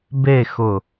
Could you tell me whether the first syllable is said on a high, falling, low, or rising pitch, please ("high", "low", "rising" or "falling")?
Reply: falling